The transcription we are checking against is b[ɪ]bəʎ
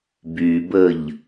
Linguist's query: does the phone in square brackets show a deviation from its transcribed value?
yes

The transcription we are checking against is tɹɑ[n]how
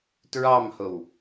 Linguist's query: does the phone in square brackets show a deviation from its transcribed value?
yes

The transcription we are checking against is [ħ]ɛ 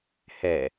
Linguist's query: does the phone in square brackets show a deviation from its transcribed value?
yes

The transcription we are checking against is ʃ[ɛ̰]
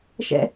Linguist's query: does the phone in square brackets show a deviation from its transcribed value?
no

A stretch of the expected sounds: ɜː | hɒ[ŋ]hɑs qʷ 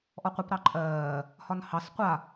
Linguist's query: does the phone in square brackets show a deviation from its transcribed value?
yes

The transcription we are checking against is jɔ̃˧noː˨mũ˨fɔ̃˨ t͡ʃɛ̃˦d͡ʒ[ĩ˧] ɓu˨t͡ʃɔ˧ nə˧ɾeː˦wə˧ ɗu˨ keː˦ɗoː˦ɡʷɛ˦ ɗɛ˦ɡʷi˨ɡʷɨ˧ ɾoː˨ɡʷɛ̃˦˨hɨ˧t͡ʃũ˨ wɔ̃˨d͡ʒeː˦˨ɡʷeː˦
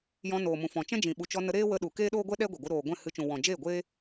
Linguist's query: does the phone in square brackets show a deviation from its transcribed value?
yes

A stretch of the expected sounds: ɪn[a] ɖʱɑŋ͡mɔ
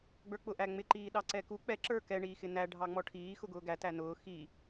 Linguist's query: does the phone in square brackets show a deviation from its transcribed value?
yes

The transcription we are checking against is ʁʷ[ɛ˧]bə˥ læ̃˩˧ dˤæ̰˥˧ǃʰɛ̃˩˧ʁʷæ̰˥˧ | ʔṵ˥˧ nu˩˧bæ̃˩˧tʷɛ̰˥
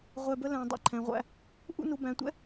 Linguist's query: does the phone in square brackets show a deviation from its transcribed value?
no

